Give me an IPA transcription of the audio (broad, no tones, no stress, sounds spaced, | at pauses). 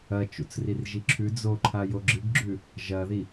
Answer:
ɐ t͡ʃ ṵ t͡s r i r ʒ i ǁʰ ʉ d͡z o ǃʰ a j o ɡ͡ǁ ɨ ɡ ɡ͡ǁ ʉ | ʒ ɐ ð i